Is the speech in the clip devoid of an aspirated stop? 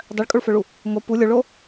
yes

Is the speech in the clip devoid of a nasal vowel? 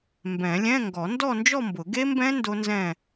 no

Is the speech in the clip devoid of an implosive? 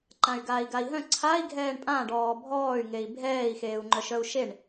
yes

